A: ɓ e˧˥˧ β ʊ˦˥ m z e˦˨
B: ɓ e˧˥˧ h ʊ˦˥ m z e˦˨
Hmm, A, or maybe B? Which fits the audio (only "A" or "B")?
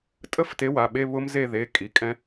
A